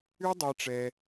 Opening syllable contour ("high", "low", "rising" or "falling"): high